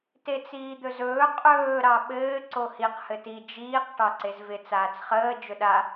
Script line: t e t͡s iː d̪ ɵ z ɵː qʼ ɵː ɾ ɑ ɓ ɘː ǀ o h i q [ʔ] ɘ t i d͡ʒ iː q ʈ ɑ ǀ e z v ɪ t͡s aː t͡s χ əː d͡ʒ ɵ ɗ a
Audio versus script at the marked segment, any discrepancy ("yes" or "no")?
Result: yes